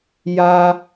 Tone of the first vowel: high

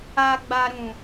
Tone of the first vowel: low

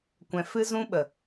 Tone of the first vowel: low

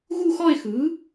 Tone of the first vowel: falling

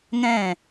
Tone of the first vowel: falling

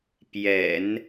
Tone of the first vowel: low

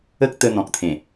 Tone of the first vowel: high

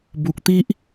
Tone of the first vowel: low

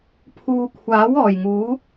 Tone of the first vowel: low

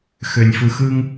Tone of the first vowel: low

